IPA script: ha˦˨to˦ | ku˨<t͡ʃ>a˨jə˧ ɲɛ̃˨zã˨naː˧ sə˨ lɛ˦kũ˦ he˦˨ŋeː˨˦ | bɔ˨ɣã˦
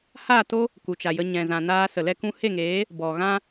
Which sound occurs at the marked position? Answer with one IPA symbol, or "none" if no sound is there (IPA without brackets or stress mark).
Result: t͡ʃ